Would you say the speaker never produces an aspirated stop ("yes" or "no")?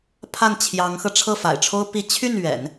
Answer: no